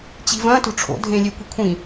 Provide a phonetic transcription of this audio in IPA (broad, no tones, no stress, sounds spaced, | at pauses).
t͡ɕ i̤ v ɐ̃ t o̤ ʈ͡ʂʰ o̰ dʱ ẽ lʲ e kʷ i̤ kʷʰ ĩ